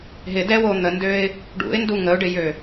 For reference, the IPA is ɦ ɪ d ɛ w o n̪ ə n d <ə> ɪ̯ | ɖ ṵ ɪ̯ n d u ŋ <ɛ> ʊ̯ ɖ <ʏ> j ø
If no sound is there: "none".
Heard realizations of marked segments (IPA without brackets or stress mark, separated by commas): ø, ə, ɪ